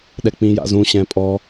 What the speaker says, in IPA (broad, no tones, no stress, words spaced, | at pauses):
ɗɛk͡pĩja̰zũ ɕɛ̃pʼɔ